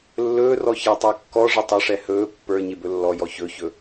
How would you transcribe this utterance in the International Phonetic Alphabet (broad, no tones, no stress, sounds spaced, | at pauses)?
lː ɵː r ɔ ç a tˤ a kː ɔ ʐ ə tˤ ə ʂ ɛ h ɵː pː ə˞ ɲ e b ɵ lː ɔ j ɔ ç ɵ ç ɵ